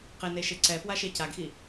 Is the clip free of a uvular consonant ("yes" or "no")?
no